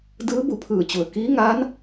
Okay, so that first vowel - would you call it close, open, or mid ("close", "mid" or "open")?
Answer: close